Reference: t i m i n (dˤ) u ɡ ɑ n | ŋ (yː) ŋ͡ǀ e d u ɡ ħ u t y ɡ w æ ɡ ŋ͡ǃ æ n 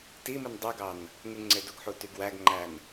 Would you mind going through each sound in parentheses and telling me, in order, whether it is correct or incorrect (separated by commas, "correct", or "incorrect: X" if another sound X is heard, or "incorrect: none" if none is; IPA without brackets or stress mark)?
correct, incorrect: y